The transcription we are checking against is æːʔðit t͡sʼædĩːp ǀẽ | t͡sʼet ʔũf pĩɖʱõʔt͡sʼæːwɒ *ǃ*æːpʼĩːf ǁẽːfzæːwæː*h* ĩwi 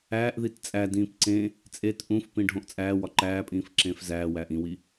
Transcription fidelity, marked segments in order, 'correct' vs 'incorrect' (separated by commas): correct, incorrect